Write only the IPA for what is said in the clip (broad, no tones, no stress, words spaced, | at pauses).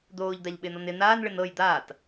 d̪oːʎd̪aʎɓɪːnɔn ɪ n̪aːnɭɪn ɤj d̪aːt